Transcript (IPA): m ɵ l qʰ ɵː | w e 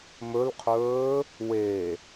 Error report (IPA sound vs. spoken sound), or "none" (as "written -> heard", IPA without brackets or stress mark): none